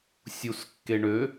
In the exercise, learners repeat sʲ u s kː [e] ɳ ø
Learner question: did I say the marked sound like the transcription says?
yes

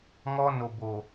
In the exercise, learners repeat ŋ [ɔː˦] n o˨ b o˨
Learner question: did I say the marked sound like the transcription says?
no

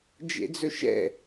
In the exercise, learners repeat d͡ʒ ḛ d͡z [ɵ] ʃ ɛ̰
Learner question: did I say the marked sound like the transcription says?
yes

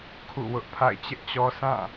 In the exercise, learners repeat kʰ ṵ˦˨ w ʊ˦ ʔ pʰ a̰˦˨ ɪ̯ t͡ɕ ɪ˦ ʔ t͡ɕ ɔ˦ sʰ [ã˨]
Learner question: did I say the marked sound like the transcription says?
no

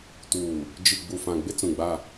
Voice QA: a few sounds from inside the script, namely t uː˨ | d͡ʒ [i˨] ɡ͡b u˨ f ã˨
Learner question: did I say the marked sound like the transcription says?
yes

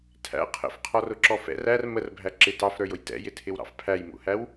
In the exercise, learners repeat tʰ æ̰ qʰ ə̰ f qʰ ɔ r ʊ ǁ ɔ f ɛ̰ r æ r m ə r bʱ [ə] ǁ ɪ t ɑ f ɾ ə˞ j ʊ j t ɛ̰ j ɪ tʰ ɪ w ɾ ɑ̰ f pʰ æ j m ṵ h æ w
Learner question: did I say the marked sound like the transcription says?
no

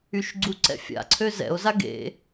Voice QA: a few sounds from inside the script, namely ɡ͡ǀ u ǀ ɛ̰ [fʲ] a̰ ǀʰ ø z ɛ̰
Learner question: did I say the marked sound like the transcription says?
yes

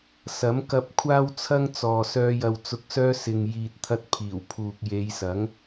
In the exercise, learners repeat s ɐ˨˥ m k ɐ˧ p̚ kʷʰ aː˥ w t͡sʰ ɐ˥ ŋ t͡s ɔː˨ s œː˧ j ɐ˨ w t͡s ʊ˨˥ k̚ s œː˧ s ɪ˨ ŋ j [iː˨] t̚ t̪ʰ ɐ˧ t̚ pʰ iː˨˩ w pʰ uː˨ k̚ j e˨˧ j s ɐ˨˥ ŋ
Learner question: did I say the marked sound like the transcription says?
yes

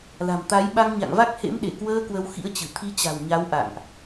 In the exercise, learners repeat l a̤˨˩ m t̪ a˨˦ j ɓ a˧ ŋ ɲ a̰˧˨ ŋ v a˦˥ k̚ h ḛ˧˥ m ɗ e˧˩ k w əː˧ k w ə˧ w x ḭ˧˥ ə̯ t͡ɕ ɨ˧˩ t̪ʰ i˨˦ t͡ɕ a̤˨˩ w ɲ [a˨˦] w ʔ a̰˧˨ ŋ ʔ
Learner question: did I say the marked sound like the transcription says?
yes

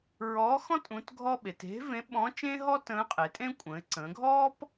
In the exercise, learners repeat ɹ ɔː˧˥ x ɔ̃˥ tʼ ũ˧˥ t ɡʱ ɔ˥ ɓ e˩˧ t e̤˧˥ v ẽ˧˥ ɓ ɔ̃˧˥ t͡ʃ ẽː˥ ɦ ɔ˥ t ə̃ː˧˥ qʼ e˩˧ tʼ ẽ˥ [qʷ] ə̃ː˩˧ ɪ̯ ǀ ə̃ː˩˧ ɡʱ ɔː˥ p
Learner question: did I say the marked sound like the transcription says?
no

